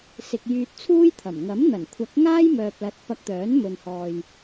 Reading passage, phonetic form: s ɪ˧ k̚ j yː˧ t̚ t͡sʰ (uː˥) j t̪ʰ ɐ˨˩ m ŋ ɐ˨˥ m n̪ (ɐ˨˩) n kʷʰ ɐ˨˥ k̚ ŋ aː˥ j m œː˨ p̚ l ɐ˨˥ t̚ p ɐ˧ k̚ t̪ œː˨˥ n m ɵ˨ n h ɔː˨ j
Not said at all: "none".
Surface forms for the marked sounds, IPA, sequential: uː˥, ɐ˨˩

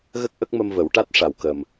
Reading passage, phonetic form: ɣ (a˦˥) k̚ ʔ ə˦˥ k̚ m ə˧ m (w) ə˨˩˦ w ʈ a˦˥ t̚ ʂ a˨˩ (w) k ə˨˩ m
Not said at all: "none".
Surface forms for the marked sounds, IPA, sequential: ə˦˥, v, w

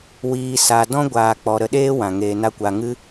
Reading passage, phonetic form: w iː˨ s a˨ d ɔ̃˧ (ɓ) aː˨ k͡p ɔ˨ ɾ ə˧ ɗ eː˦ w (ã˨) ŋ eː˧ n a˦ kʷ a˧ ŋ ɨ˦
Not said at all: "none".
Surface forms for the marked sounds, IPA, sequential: ɡʷ, ã˨

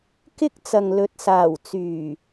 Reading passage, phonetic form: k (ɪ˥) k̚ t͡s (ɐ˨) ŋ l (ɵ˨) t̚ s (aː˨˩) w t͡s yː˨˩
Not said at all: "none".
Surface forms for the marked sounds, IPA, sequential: ɪ˥, ɐ˨, ɵ˨, aː˨˩

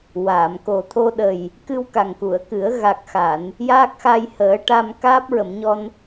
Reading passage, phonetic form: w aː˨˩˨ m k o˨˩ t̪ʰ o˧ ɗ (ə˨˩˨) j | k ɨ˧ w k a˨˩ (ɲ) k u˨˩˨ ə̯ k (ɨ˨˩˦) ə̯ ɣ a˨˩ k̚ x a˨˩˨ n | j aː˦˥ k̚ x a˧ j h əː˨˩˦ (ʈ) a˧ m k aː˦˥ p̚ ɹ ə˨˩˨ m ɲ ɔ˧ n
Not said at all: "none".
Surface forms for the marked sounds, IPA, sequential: ə˨˩, ŋ, ɨ˨˩˦, ʈ

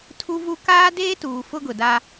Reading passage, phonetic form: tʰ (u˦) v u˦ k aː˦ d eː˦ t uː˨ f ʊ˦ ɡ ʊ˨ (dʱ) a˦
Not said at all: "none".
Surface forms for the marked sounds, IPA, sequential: u˦, d

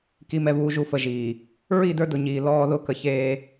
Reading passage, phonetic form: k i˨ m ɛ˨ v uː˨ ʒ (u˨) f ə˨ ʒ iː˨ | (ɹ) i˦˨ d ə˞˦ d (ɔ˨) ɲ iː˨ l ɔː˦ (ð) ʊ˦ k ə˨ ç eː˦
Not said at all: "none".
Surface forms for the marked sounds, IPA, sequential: u˨, ɹ, ʊ˨, ð

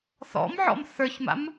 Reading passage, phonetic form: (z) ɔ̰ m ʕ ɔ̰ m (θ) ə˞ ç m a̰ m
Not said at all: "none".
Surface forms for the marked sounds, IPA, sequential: θ, θ

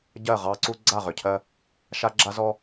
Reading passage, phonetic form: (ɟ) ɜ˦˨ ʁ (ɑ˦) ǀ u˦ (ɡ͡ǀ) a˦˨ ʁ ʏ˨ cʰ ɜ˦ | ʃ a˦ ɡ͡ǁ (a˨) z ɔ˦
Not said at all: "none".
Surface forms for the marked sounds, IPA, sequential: ɟ, ɑ˦, ɡ͡ǀ, a˦

